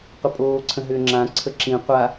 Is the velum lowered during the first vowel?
no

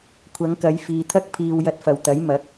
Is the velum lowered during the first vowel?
no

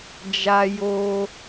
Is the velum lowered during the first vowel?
no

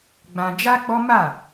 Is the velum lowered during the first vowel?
yes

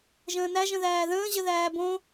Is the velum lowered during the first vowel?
yes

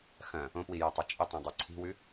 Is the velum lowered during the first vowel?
yes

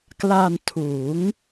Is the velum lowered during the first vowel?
no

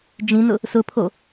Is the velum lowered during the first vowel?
yes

